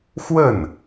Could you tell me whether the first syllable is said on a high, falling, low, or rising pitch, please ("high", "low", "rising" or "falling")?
falling